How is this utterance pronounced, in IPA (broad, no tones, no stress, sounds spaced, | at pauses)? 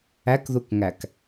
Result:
æ k ð u k ŋ æ k